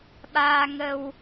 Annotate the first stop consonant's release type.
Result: implosive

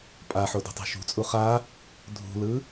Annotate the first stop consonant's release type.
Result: ejective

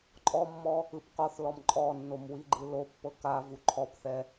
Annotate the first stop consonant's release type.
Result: click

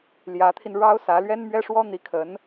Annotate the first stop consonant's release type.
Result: aspirated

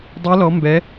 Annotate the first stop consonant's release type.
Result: plain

